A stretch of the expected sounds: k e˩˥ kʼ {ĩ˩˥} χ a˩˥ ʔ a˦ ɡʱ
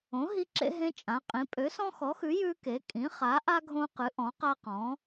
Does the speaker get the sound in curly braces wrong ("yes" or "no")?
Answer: no